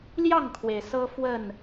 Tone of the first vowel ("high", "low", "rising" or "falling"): falling